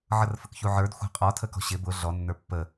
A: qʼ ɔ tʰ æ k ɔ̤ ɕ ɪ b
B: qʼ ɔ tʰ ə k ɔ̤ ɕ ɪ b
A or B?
B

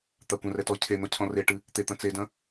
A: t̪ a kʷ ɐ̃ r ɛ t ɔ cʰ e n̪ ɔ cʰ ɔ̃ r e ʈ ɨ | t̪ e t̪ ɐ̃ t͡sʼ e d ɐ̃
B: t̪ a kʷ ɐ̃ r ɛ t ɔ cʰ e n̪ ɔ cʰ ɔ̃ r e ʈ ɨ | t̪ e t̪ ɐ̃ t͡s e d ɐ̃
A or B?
B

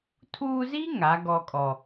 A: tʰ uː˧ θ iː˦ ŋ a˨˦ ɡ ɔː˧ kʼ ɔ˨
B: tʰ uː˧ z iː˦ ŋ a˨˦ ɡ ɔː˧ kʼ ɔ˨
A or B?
B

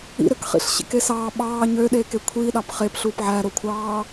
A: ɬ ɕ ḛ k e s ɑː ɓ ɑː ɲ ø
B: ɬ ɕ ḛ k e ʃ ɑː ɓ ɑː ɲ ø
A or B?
A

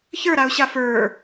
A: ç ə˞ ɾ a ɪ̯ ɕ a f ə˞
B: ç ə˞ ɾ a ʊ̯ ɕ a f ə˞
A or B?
B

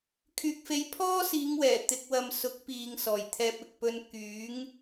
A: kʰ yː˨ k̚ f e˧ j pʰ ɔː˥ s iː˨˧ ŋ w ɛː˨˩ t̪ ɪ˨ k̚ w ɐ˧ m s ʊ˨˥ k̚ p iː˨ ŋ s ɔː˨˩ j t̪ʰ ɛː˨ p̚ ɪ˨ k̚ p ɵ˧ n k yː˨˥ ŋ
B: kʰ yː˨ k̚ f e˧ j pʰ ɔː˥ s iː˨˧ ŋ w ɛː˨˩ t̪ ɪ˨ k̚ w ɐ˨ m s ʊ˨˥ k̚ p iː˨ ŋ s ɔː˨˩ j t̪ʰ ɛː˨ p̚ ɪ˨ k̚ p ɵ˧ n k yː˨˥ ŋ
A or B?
B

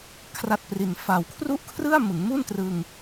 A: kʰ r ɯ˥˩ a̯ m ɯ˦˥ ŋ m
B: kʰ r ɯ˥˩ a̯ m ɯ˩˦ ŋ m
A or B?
B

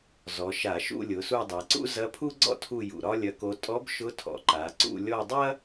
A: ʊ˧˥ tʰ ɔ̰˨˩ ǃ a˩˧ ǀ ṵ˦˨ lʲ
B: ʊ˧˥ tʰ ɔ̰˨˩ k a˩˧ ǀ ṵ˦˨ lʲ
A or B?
A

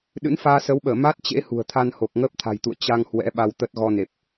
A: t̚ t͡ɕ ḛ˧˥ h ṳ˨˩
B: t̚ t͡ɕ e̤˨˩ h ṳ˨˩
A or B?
A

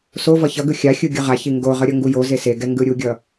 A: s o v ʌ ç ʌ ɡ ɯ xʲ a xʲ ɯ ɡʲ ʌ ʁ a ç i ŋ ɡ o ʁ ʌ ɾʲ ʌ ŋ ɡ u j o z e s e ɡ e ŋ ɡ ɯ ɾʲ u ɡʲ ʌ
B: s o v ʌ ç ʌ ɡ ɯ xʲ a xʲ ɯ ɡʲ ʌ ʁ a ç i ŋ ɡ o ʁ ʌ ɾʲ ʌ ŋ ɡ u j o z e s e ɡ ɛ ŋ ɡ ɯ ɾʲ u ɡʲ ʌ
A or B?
B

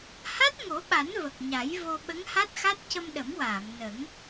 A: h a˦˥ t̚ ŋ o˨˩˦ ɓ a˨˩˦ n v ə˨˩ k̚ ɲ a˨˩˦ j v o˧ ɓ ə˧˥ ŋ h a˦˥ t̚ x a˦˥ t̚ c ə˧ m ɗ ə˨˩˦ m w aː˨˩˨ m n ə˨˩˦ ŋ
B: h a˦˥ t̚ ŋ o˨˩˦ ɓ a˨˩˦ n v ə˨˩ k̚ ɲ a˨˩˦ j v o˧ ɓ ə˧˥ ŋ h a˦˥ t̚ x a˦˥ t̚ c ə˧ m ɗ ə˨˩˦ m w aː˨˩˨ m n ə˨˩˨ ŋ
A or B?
A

